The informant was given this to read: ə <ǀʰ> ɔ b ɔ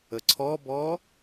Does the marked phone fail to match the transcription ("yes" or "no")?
no